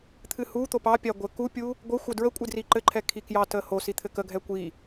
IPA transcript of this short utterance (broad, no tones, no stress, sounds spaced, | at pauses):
t̪ʰ ɨ h u t̪ o p ɑ pʲ a ɡʷ ɘ k u pʲ u | ɡʷ ə xʷ ə d ɹ ə kʷʼ ɨ d r i ǃ ɘ ǃʰ ɛ kʰ i k j ɑ t ə h o s i t̪ʰ ɘ k ə ɡʱ ɛ kʷ i